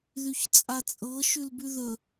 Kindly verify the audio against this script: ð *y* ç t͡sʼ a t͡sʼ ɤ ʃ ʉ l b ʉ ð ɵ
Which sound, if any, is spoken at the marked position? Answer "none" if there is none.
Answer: y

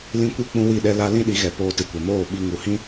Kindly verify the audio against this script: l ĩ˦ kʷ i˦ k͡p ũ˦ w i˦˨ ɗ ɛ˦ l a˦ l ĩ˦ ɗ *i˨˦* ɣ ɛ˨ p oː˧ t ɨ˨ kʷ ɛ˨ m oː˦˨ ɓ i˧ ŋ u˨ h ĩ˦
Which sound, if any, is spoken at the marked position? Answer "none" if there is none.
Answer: i˨˦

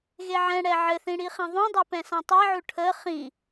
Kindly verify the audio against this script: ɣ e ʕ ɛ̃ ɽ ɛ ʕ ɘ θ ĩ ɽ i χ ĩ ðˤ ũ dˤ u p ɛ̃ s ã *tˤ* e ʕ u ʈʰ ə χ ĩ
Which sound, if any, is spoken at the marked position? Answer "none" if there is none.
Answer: tˤ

